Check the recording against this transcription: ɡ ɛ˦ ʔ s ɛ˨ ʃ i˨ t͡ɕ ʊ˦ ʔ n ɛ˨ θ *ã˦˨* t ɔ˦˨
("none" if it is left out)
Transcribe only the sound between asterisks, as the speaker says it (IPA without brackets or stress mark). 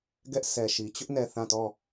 ã˦˨